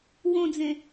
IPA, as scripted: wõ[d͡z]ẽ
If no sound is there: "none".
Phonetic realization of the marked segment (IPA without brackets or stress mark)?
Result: d͡z